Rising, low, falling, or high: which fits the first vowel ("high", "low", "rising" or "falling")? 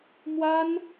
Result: high